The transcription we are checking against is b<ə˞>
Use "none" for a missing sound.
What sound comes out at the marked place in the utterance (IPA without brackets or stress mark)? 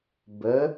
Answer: ə